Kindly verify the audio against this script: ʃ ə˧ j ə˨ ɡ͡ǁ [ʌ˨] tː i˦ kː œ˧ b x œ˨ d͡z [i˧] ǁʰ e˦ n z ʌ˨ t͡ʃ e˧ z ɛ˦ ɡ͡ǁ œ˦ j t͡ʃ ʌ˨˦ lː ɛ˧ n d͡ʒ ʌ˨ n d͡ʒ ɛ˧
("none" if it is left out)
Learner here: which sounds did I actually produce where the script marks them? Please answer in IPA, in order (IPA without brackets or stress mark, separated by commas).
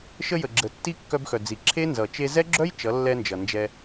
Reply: ə˨, i˨